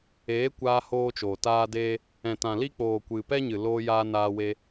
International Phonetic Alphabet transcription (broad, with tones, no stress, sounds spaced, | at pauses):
eː˨˦ kʷ aː˧ h oː˧ t͡ʃ oː˨ t aː˦ d eː˦ | ɛ̃˨ t ã˨ l i˦ k͡p oː˨ kʷ ɨ˨ p ɛ˦ ɲ ɨ˨ l oː˧ j aː˧ n aː˧ w e˧